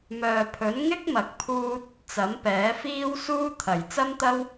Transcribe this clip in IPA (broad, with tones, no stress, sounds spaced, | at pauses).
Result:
m œː˨ pʰ ɵ˨˥ n ŋ ɪ˥ k̚ m ɐ˨˥ k̚ pʰ uː˧ t̚ | t͡s ɐ˨˥ m p ɛː˨˥ f iː˥ w s uː˥ t̪ʰ ɐ˨˩ j t͡s ɐ˥ m t̪ ɐ˥ w